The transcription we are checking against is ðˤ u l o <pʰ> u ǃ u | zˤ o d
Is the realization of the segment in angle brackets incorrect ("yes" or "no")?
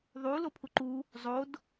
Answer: no